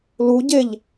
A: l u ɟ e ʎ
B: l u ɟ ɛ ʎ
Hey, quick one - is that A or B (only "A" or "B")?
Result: A